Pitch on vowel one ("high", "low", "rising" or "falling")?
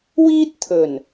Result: high